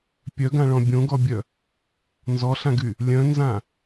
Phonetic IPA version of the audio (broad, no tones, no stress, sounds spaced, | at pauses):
pʲ œ ɡ ã ɭ ɔ̃ bʲ õ ɡ ɔ bʲ œ | n z ɔ ɬ ã ɡ y | lʲ œ̃ n z ã